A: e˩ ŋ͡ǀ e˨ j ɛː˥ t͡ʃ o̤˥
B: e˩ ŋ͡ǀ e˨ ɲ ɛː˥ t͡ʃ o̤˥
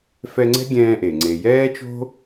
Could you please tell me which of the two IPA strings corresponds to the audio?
A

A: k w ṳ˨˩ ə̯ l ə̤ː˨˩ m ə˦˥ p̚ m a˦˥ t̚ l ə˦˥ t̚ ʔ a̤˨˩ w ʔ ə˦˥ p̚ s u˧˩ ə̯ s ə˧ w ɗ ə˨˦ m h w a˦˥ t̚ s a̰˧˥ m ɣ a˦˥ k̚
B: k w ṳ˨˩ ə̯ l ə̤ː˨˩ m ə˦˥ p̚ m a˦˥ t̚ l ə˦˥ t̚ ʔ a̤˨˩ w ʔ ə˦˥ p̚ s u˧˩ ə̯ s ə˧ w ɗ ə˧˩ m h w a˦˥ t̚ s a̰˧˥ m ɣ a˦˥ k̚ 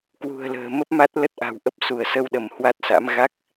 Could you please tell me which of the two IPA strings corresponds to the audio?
B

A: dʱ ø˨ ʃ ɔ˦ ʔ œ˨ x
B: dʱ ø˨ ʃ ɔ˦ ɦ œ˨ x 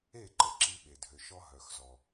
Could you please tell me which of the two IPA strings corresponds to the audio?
B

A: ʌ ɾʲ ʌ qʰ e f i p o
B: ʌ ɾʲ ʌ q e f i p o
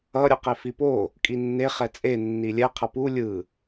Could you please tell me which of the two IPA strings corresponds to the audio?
B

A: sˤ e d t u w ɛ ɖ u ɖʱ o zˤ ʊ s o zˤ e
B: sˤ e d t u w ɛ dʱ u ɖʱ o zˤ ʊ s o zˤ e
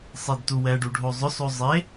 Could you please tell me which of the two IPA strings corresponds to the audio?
A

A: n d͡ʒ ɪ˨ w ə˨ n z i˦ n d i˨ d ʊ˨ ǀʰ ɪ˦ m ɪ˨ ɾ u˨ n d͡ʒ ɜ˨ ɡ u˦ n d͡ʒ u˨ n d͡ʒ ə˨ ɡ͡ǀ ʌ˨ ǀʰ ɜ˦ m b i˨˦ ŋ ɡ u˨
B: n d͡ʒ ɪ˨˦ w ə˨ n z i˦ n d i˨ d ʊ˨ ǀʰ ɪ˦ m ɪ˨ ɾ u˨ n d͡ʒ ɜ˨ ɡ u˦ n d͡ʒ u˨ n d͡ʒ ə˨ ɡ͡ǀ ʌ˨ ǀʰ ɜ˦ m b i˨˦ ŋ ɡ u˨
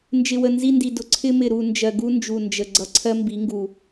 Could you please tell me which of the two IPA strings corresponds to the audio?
A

